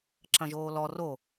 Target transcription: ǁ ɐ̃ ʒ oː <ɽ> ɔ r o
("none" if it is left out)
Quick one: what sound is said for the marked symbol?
l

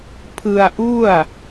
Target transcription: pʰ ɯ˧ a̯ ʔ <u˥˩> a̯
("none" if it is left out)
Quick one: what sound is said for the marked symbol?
u˥˩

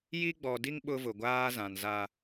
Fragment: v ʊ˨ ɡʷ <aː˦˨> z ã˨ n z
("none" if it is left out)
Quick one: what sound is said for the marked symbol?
aː˦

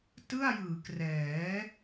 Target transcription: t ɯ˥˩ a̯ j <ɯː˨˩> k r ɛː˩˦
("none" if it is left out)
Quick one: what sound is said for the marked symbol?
ɯː˩˦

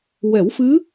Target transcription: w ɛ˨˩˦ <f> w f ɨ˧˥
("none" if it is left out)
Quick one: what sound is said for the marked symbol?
none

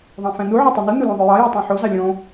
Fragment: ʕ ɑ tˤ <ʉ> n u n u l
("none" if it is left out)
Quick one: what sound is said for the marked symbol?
ø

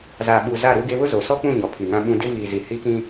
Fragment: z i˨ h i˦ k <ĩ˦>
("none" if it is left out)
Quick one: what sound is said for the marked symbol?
ĩ˦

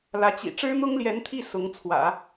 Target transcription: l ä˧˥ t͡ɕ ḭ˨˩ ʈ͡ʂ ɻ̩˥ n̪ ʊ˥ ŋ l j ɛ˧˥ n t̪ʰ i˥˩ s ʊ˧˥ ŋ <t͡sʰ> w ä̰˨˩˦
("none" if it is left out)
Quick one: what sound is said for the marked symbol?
t͡sʰ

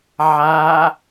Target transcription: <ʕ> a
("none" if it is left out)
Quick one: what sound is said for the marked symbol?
ʕ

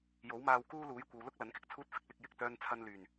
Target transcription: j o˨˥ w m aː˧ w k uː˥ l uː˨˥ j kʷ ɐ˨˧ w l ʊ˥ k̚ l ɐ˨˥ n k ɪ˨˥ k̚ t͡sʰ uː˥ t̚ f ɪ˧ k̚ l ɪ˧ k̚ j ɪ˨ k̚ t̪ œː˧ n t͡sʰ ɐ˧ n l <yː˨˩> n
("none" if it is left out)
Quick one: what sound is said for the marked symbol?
yː˨˩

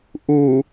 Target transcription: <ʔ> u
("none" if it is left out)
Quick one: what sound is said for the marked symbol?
ʔ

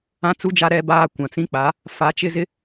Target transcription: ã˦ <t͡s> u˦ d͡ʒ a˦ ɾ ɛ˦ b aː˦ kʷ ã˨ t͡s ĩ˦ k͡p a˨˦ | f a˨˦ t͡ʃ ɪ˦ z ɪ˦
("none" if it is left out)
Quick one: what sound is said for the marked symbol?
t͡s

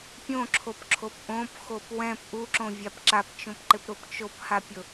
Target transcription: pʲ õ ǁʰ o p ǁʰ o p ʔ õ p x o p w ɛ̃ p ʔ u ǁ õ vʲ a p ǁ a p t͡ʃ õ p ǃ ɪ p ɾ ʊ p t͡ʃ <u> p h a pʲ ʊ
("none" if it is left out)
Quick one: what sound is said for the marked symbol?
o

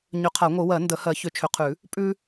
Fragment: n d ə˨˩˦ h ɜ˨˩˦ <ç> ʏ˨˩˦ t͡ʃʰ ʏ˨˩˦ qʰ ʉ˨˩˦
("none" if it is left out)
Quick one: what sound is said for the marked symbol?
ç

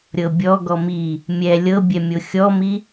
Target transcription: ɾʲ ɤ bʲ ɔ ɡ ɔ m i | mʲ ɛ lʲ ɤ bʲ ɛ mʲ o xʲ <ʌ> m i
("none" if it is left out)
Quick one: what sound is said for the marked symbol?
ɔ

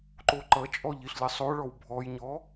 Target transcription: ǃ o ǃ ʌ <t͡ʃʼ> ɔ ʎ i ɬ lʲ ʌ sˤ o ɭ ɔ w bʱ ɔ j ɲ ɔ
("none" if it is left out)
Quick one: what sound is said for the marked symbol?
t͡ʃʼ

